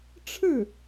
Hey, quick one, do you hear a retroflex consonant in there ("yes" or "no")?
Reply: yes